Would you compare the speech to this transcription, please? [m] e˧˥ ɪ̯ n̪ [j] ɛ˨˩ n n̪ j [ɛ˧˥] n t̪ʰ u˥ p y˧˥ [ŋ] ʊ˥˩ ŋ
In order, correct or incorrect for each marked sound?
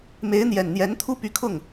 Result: correct, correct, correct, incorrect

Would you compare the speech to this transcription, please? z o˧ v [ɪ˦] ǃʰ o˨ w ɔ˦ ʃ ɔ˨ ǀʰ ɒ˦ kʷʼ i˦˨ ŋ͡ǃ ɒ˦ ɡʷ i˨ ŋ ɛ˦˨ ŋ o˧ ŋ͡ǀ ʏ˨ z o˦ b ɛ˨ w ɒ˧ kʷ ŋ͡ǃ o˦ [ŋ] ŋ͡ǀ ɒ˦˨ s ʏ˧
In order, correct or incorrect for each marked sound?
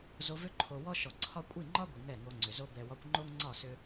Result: incorrect, correct

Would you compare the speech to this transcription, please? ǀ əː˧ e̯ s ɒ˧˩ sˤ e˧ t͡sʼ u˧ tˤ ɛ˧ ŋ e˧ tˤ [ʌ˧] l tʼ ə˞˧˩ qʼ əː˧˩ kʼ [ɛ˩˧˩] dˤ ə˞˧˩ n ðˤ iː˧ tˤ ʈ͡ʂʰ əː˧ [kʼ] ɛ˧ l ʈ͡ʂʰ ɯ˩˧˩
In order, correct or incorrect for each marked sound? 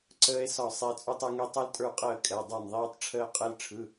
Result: correct, correct, incorrect

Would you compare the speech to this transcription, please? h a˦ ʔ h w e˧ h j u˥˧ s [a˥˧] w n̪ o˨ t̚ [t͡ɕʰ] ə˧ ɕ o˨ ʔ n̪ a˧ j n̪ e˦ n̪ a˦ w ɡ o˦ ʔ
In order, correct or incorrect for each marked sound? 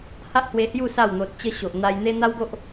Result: correct, incorrect

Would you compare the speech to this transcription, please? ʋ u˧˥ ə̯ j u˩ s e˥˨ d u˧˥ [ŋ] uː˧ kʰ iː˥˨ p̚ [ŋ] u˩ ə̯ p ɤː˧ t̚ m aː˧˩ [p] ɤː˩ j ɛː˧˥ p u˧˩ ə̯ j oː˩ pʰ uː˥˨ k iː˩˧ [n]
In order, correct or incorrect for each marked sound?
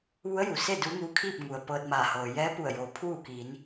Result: correct, correct, incorrect, correct

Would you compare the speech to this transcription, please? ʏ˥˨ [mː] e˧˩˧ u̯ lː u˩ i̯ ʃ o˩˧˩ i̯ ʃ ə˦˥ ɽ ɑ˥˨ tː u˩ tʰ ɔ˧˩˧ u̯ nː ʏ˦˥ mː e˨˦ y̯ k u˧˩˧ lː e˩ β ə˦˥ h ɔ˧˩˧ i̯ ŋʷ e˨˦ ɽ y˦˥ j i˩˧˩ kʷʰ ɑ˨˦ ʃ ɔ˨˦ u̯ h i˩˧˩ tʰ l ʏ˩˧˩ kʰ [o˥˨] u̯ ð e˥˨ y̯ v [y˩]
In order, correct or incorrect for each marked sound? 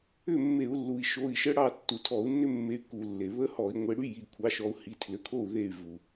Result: correct, correct, incorrect

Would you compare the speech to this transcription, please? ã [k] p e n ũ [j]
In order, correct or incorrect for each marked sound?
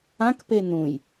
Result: correct, correct

